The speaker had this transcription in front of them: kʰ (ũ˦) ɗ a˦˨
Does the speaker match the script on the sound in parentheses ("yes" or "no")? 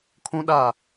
yes